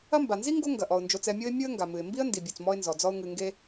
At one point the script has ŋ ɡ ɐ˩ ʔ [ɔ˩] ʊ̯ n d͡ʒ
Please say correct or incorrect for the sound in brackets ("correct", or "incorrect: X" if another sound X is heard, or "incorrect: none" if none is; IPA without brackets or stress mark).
correct